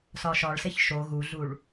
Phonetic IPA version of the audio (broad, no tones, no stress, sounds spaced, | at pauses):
s ɒ ʃ ɒ ɭ s e ç ʃ o ɣ u ɮ u ɭ